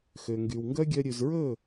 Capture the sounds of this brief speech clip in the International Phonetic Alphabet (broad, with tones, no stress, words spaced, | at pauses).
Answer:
xø˨ŋɡy˨wŋɡœ˦ɡʲœ˧ ɾʲʉ˨zɹɵ˦˨